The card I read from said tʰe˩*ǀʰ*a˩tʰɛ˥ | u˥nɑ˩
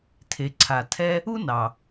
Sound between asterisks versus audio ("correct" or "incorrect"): correct